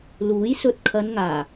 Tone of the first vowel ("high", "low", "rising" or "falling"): rising